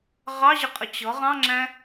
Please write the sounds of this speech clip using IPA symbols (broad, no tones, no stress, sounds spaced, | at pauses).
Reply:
ʁ ɑ ʑ ə qʼ ə t͡ɕ ʌ ʁ ɑ̃ ŋ͡ǁ æ̃